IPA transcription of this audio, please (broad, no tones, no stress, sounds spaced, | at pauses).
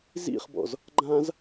z ḭ χ b ɔ̰ z | ɡ͡ǃ ã z